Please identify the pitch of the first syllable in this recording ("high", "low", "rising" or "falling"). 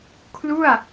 falling